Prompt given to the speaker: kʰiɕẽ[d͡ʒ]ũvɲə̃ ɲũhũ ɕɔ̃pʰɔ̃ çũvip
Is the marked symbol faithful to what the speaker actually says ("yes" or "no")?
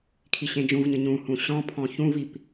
yes